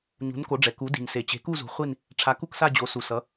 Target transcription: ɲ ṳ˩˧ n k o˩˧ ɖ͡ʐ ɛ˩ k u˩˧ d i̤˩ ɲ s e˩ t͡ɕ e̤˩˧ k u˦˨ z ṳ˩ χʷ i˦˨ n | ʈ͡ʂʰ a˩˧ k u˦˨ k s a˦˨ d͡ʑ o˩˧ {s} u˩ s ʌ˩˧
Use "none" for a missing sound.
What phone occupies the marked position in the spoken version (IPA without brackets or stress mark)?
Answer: s